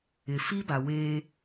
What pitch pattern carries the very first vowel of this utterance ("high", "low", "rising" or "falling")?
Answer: low